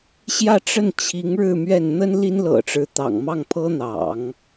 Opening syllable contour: falling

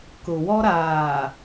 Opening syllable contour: low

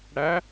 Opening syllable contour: rising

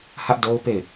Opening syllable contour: high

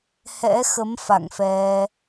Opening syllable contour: rising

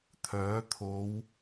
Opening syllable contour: rising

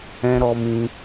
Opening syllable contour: high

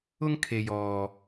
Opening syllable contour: high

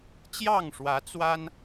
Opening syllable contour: falling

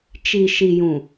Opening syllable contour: low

